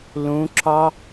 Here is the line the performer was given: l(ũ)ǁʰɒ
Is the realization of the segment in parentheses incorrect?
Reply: no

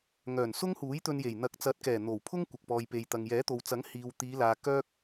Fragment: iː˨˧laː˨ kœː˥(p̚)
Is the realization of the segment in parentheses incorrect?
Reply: yes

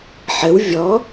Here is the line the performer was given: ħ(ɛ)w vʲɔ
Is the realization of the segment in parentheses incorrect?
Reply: yes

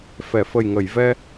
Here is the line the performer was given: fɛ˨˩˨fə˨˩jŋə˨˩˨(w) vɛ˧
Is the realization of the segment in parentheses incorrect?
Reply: yes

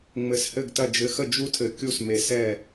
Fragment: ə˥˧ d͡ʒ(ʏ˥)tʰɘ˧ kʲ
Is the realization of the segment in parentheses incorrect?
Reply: yes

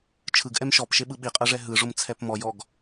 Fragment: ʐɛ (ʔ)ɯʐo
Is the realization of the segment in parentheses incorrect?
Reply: yes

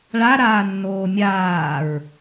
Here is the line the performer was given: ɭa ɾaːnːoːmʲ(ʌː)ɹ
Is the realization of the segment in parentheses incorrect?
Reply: yes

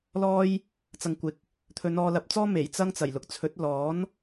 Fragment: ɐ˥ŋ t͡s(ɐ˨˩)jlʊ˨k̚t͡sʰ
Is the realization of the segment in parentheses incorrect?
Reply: no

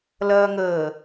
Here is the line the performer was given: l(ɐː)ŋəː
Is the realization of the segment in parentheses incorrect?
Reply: no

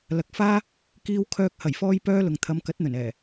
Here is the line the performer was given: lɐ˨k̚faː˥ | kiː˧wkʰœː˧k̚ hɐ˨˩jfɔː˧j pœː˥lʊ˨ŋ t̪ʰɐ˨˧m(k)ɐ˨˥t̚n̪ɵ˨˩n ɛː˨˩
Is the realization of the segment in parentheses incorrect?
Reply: no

